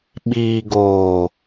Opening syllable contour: low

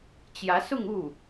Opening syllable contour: rising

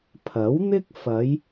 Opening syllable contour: rising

